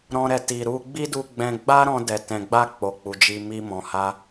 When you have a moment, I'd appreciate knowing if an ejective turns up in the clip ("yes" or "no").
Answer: no